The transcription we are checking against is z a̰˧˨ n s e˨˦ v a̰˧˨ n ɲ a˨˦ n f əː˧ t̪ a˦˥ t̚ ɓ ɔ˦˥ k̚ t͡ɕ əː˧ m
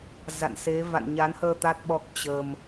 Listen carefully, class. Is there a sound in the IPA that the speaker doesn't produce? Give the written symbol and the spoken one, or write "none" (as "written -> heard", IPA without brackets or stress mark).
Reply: f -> h